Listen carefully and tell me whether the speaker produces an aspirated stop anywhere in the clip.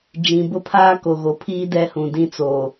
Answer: yes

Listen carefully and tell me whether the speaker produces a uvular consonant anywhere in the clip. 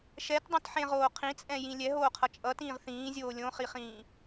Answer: yes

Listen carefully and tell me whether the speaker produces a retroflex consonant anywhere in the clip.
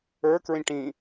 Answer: yes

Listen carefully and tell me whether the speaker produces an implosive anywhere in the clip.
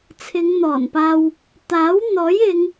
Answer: no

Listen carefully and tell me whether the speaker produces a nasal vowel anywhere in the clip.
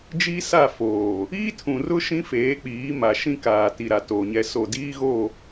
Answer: yes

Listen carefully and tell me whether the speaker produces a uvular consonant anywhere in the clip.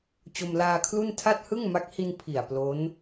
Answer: no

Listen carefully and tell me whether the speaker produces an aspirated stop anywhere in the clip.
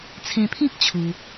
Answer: yes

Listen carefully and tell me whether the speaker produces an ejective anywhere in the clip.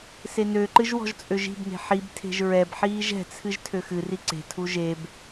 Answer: yes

